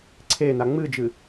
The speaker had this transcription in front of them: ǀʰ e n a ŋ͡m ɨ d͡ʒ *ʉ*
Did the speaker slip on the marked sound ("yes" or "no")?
yes